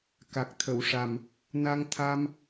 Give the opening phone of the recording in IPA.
k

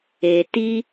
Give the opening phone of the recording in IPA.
e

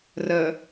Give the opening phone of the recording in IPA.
r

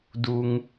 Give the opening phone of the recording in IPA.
d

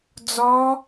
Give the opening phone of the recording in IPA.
d͡z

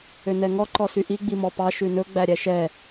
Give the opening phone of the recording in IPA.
ø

